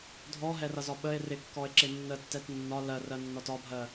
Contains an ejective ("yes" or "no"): no